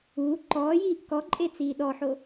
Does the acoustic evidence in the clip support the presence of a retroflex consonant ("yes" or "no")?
no